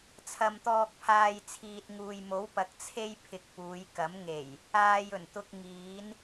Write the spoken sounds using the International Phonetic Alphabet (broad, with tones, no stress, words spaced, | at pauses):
t͡sʰɐ˨mt̪ɔː˨k̚pʰaː˨j t͡sʰiː˨t̚ŋuː˨jmo˨˥w pɐ˨˥k̚ t͡sʰe˥j pʰɪ˧k̚puː˨˧j kɐ˨˥mŋe˨˩j | aː˧jɵ˨˩n t̪ʊ˧k̚ ŋiː˨˥n